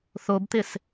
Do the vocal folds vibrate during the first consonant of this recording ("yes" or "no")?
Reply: no